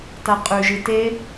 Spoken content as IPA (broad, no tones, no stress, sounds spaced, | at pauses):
t a qʼ ʉ ʒ ɨ t e